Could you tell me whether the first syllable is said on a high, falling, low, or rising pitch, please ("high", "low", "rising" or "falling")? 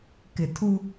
low